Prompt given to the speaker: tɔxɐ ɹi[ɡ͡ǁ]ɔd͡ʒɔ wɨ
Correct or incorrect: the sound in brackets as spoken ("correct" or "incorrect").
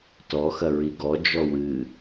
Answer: incorrect